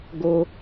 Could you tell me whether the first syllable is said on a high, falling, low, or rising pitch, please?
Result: high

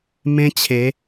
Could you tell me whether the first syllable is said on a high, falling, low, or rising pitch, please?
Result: high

